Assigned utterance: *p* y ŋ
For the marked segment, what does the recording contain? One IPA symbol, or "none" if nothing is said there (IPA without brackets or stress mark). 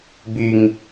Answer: b